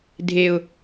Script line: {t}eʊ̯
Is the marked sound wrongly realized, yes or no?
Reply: yes